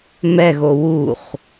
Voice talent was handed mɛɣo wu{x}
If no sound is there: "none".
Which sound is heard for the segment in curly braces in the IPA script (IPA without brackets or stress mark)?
χ